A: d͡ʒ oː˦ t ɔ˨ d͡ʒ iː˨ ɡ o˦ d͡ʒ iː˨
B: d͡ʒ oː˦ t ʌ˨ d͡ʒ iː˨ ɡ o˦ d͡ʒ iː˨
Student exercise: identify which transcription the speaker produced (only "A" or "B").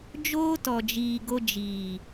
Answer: A